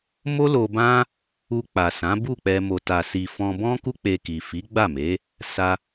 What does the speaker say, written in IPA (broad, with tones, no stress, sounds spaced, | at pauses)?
m o˦ l o˧ b ã˦ | u˧ k͡p a˨ s ã˨˦ b u˦˨ k͡p ɛ˧ m o˨ t a˨ s i˨ f ɔ̃˧ b ɔ̃˦ k u˦ k͡p e˧ k i˨ f i˨˦ ɡ͡b a˦˨ m e˨˦ | s a˧